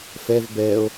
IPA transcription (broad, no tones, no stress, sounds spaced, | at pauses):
f ɛ v b ɛ o̯